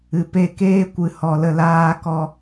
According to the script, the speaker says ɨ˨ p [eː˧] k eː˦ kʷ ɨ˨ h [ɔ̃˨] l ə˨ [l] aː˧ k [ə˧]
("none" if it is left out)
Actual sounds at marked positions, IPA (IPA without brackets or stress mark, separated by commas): e˧, ɔ˨, l, ɔ˧